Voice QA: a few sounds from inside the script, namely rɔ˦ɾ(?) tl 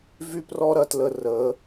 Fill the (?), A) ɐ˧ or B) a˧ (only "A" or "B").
A